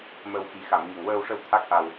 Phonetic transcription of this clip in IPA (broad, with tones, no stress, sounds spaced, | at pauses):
m ə˧ w x i˨˩˦ x a˨˩˨ m ɲ ə˨˩ ŋ w əː˧ w ʂ ə˧ w t̪ʰ a˦˥ k̚ ʔ a˧ w